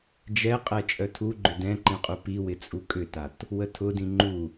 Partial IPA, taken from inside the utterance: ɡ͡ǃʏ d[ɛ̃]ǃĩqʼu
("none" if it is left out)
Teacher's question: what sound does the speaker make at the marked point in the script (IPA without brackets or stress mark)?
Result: ɛ̃